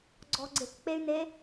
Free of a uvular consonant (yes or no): yes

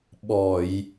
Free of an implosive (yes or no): no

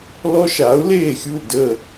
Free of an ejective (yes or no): yes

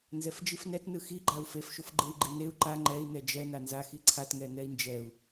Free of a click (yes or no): no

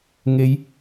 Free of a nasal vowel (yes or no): yes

